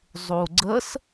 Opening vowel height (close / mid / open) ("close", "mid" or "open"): close